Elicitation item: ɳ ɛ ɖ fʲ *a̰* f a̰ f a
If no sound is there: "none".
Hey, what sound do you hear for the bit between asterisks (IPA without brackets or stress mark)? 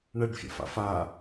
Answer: a̰